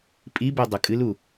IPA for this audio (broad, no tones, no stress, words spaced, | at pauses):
pʼibe dˤukʼɨlu